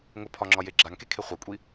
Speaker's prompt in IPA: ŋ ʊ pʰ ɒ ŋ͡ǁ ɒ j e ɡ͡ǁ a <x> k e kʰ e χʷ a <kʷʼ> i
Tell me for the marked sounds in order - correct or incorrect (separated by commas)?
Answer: incorrect, correct